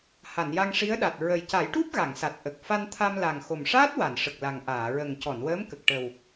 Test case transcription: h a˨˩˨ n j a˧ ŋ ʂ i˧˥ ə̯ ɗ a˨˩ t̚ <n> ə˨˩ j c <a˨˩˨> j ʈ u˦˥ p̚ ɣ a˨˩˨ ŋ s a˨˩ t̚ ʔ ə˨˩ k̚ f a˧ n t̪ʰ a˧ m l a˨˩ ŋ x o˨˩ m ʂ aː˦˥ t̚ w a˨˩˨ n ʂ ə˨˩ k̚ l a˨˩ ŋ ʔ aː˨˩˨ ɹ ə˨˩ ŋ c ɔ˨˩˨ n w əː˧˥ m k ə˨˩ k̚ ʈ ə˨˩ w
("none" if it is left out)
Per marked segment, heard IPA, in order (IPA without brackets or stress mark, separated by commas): ɹ, a˨˩˦